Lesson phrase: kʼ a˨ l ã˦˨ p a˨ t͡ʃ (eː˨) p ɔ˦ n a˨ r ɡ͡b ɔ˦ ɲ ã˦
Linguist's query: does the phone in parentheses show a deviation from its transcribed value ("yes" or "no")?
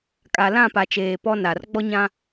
no